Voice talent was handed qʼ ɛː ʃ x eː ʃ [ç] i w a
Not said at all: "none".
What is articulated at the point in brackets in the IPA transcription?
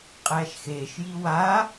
j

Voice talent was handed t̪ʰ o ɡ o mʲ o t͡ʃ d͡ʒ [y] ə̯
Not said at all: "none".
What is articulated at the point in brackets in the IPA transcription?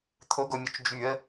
y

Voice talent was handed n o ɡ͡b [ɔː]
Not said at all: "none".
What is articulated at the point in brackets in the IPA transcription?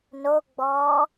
ɔː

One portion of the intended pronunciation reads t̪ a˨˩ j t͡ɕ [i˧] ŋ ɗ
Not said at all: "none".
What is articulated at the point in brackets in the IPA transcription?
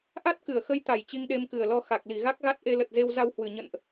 i˧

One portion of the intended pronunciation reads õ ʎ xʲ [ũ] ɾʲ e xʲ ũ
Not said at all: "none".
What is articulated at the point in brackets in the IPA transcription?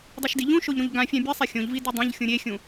ũ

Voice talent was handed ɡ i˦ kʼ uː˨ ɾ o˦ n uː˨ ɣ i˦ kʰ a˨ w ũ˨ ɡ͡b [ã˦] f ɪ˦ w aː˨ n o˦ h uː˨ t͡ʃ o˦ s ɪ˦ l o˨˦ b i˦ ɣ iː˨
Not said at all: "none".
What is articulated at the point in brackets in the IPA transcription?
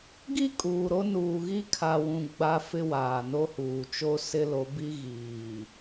a˦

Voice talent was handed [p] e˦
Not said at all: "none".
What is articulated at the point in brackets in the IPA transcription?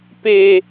p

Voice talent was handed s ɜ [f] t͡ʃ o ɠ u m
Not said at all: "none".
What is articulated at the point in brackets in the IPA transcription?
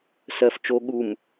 f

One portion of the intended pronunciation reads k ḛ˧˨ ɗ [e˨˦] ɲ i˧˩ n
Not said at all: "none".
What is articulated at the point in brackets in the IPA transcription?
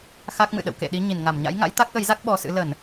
i˨˦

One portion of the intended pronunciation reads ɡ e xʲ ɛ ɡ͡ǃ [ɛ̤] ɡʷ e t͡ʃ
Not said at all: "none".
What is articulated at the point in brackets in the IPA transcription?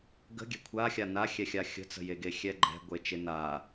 ɛ̤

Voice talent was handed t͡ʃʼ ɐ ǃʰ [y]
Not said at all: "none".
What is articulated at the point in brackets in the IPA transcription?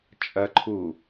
u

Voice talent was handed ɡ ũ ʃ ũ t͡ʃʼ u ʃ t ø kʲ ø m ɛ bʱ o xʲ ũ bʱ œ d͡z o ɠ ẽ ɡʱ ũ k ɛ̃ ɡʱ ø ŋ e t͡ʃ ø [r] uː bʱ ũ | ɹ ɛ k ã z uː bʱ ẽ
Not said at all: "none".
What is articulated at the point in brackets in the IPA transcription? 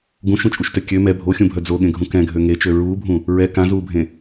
ɹ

